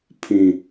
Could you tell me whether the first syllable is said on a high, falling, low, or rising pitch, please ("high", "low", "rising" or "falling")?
low